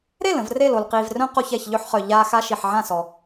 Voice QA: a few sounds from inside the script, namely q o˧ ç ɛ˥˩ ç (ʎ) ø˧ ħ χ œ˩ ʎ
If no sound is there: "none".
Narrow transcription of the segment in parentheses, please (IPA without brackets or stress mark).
ʎ